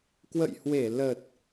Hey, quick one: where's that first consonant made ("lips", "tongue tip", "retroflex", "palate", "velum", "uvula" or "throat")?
velum